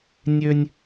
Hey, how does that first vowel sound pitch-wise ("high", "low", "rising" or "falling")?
high